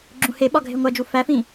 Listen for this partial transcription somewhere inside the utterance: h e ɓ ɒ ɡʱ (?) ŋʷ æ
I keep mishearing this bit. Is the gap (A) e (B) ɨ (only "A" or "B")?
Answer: A